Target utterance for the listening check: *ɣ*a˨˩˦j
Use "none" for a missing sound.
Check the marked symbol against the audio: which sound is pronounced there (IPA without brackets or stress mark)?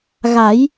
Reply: ɣ